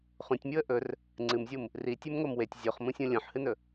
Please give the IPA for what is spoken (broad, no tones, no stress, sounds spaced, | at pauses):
χ ũ tʲ mʲ u ə̯ ʔ ɵ r | ŋ͡ǀ ɨ m zʲ u m | r i tʲ ʉ m ŋ o m w e tʲ zʲ o χ m ũ sʲ ũ lʲ õ ħ h ɨ n ɵ